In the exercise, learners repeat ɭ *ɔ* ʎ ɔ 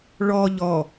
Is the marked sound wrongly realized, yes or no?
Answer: no